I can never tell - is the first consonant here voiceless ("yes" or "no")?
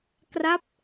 yes